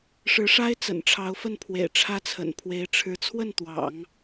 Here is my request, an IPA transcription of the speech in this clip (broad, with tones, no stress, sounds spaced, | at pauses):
ʂ ɻ̩˧˥ ʂ a˥ ɪ̯ t͡s ə̰˨˩ n ʈ͡ʂʰ ɑ˧˥ ʊ̯ f ə˥˩ n pʰ w ḛ˨˩ ɪ̯ ʈ͡ʂʰ ä˥ t͡sʰ ə̰˨˩ n pʰ w e˧˥ ɪ̯ ʈ͡ʂʰ ɻ̩˧˥ t͡sʰ w ə˥˩ n t̪ w ɑ̰˨˩˦ ŋ